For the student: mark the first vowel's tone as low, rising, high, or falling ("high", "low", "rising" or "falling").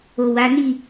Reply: low